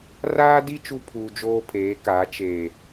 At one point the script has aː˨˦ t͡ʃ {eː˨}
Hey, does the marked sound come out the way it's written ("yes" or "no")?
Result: yes